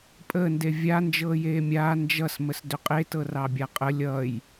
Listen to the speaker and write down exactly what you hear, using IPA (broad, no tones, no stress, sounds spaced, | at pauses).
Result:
pʼ əː n d e vʲ a n d͡ʒ ɤː j eː mʲ aː n d͡ʒ ʌ s m ə s d ʏ qʼ e t ɤ r ɑ bʲ a qʼ ə lʲ ʌ j